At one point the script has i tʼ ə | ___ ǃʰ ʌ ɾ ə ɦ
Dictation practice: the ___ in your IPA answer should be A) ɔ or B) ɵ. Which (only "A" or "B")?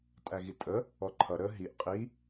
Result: A